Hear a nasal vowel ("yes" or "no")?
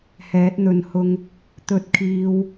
no